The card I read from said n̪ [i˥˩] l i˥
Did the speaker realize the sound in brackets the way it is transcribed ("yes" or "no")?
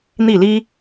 yes